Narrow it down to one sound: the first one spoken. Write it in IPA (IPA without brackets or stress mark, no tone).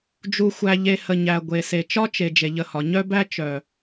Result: d͡ʒ